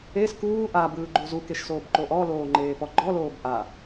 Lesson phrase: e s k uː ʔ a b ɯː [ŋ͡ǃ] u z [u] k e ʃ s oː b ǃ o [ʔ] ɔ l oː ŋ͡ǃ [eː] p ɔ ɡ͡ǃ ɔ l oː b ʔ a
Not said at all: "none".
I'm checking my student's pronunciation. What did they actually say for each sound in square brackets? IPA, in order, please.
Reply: ɡ͡ǃ, u, ʔ, eː

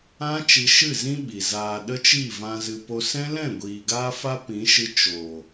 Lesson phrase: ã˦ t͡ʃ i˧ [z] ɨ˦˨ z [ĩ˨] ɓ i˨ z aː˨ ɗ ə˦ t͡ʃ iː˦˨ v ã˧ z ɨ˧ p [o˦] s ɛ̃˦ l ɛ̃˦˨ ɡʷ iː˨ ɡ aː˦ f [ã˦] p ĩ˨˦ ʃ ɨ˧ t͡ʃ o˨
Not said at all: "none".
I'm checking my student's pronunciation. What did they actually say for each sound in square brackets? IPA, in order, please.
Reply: ʃ, ĩ˦, o˦, a˦

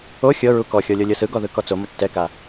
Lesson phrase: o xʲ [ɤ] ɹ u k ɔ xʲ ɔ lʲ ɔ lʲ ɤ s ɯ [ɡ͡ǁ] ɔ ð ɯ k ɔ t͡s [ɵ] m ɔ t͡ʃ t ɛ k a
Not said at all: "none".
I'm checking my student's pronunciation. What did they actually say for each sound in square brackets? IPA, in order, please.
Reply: ɤ, ɡ, o

